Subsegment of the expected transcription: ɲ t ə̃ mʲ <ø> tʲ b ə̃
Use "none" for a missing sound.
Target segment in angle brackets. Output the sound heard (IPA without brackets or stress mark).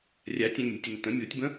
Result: u